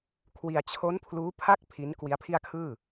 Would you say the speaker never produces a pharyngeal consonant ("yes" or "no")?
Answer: yes